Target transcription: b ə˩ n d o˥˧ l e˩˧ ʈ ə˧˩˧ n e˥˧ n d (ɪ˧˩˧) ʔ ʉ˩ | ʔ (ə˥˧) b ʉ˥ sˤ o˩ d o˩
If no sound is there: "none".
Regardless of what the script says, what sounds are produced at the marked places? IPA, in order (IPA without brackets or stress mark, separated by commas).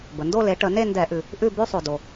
ɛ˧˩˧, ʉ˥˧